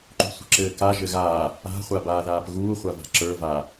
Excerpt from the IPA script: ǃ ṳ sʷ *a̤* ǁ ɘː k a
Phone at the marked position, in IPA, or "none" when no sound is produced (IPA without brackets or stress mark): ə̤